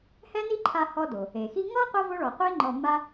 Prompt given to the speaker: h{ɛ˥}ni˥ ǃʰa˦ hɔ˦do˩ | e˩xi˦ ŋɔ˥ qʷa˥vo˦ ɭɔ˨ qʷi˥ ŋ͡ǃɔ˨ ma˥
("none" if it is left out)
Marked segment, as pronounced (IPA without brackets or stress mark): ɛ˥